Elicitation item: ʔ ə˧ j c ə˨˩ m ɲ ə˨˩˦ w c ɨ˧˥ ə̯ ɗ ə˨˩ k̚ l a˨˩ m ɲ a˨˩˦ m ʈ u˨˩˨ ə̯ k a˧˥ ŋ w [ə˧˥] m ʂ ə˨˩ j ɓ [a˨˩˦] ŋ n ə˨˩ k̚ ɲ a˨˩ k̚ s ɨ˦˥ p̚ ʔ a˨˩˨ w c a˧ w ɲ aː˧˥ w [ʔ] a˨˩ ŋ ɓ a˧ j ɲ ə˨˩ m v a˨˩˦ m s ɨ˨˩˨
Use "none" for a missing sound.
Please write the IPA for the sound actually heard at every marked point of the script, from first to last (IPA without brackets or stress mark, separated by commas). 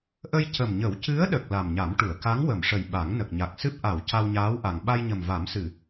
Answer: ə˨˩˨, a˨˩˦, ʔ